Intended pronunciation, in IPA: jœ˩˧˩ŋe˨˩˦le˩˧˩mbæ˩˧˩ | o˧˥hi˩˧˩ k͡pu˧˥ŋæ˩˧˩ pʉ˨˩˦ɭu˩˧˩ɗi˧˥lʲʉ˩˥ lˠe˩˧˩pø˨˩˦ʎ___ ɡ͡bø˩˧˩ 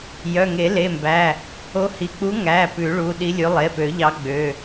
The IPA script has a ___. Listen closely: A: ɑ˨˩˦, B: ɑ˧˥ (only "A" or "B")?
B